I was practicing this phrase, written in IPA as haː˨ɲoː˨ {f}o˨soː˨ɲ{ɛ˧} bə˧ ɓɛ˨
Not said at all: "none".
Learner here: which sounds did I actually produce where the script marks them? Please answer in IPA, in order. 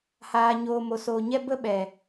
m, ɛ˧

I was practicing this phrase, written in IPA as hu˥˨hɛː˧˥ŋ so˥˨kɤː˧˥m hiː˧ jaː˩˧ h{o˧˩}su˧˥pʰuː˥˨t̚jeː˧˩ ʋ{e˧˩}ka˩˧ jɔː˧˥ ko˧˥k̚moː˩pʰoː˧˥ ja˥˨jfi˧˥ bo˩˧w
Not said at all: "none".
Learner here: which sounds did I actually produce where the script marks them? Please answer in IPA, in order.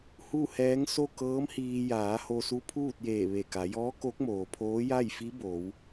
o˧, e˧˩

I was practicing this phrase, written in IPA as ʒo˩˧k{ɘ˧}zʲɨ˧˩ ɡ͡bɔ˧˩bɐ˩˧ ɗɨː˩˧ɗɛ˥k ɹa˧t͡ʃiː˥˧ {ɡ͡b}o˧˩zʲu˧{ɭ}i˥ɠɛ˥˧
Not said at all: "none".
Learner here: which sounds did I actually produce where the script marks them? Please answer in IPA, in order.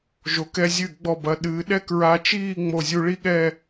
ɛ˧, ŋ͡m, ɭ

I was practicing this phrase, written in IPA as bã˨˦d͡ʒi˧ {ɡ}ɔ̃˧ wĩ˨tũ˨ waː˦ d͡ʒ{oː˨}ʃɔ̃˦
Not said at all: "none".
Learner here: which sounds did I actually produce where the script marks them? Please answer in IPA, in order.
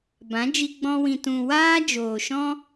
ɡ͡b, oː˨

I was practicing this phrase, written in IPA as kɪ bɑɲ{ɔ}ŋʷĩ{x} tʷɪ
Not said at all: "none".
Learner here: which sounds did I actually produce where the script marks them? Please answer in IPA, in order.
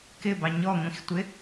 ɔ, x

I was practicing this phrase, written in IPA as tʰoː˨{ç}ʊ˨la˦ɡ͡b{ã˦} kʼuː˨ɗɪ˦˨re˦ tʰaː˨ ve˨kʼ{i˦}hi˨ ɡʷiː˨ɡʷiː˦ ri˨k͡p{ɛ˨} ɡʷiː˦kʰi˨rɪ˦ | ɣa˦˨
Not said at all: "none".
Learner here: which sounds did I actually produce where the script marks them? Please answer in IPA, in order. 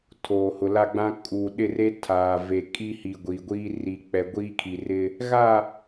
h, ã˦, i˦, ɛ˨

